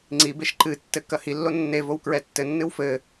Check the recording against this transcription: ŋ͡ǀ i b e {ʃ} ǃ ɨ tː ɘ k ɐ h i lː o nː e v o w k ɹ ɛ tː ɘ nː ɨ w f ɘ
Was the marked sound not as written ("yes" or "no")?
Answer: no